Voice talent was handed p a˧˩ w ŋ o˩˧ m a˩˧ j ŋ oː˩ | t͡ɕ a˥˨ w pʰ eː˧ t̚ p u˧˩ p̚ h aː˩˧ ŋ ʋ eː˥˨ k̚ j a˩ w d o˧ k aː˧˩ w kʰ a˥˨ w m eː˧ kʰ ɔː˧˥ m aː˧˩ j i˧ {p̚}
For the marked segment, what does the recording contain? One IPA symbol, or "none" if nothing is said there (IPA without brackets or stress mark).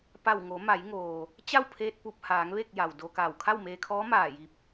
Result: p̚